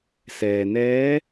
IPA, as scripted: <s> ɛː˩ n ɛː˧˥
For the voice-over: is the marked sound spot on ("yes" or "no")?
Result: yes